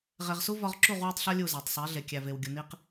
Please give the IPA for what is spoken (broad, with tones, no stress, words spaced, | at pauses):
ʁe˨ʁsu˦ vɒ˦ʁ ǁu˦˨ʁ wæ˦tˤɬɒ˦ lʲu˦˨zæ˨tˤsˤe˨˦ɮe˨ kʲæ˨ve˨wɡʲu˨ ni˦q